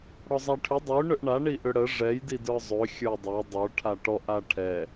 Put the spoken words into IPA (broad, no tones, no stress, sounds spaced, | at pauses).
ɽ ɔ zˤ a ʈʰ ʏ dˤ ø ɳ ʏ ʔ ɳ a ɳ i ʔ ʏ ɽ ə ʐ ɛ j d i d ə˞ zˤ ø xʲ ə˞ dˤ ɛ dˤ ə˞ ʈʰ a ʈ ɔ ʔ a ʈʰ ɛ